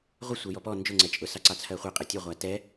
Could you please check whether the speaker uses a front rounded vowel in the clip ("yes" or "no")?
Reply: no